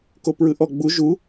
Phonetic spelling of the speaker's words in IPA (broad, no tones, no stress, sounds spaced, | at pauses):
k o p ɹ ɯ ʔ ɔ ɡ͡b u ʒ u